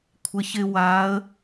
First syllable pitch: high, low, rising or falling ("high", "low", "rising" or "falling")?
low